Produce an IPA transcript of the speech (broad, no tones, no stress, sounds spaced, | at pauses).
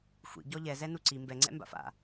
xʷ ḭ ɟ ɔ ʎ ɛ z ɛ n u ǀ i m b ɛ ŋ͡ǀ ɛ̰ m b a̰ f a̰